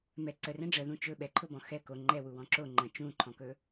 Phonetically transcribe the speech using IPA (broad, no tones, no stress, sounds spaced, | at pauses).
m ɛ ǀ ə r ɛ̃ ɖ͡ʐ ə ð ũ t͡ʃ ɵ ɓ ɛ ǃʰ ʊ b ɔ̃ x ɛ k o ŋ͡ǃ ɛ w u w ɔ̃ ǁ o ŋ͡ǃ ə̃ t͡ʃ ũ ǃʰ ɔ̃ k ɵ